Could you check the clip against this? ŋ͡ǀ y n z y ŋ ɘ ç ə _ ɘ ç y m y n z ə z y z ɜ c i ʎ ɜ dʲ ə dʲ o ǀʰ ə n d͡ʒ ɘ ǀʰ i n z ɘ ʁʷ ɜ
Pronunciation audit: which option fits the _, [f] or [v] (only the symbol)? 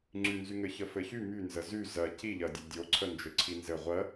f